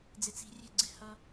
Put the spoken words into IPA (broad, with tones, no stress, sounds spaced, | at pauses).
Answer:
d͡z ɪ˧ t͡s i̤˧ rʲ ɛ̤˦˨ ɡ͡ǀ ɪ˦ h ʌ˦